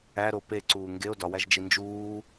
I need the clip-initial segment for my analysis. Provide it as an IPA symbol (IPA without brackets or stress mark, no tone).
æ